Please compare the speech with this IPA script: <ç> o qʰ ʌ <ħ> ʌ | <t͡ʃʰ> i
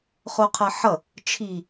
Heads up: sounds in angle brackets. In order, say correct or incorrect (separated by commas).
incorrect, correct, correct